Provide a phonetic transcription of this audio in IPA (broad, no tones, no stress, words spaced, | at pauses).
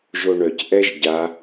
ʒoɳœc ʔɛʒɟa